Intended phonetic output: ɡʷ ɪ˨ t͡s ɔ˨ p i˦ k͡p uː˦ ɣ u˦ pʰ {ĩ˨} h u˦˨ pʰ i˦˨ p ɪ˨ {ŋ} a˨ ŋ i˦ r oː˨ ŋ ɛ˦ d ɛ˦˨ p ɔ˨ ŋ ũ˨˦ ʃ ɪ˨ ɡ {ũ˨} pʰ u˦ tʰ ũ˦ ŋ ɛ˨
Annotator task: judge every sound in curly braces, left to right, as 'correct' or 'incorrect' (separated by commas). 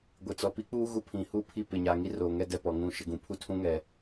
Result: correct, incorrect, correct